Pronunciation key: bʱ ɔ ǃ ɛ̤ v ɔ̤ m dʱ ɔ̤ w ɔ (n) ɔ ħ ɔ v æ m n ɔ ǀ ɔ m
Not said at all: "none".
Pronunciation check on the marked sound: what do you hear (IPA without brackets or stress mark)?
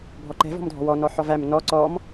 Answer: n